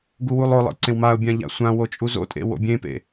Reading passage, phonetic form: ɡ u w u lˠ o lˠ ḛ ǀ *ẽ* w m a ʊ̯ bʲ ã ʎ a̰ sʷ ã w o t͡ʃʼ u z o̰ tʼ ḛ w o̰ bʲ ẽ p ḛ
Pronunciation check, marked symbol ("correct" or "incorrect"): correct